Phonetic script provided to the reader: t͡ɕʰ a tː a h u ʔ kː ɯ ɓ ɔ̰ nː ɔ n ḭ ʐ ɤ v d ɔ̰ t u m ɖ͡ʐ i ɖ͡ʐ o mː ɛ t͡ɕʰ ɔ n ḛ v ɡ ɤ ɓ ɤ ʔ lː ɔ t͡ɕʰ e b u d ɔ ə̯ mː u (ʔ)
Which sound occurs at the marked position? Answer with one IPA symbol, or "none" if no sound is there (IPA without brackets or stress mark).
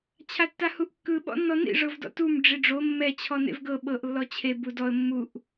ʔ